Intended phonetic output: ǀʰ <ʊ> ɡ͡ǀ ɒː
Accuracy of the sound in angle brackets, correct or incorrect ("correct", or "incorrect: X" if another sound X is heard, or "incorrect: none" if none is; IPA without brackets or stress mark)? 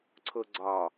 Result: correct